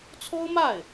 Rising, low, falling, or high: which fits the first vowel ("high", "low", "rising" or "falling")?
high